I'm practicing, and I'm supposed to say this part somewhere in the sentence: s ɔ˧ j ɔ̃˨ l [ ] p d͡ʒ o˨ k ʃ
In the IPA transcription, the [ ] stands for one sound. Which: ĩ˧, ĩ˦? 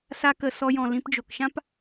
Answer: ĩ˧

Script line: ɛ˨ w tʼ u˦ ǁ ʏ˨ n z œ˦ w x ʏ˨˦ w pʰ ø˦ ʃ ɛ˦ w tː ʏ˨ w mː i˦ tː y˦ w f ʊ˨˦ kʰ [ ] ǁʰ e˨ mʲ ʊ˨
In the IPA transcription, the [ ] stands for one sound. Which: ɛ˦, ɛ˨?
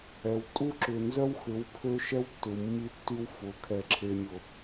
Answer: ɛ˨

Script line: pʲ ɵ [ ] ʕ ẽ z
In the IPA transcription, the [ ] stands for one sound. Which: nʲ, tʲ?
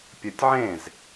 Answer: tʲ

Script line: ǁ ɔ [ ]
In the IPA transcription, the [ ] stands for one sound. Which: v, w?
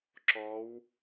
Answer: w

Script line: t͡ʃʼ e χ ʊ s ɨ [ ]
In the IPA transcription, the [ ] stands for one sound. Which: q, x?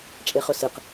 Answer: q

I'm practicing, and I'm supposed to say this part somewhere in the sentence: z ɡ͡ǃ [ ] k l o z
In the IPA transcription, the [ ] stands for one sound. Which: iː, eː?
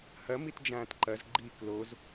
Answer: iː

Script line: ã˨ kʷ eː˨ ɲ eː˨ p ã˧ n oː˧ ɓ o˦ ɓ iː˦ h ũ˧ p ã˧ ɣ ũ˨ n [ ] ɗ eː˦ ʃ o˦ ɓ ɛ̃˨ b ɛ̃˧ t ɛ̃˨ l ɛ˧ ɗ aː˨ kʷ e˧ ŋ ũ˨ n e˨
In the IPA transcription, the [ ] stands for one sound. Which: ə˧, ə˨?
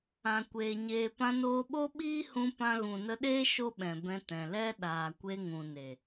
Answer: ə˧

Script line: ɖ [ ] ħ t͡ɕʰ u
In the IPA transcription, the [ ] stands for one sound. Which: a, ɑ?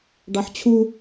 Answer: ɑ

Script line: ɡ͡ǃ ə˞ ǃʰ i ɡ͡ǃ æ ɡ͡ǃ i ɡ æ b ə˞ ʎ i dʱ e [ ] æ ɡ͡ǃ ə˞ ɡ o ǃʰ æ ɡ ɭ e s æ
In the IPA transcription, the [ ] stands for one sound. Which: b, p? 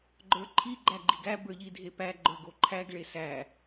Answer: p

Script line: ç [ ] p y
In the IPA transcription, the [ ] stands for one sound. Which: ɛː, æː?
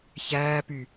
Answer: æː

